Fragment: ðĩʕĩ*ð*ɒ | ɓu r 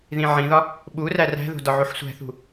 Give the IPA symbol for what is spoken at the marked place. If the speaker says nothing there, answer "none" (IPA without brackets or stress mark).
ð